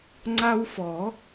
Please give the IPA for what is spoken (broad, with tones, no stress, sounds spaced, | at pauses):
ŋ͡ǀ a˦ w f ɔ˨˩˦